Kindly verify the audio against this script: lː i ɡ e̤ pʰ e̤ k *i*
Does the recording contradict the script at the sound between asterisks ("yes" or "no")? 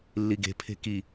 no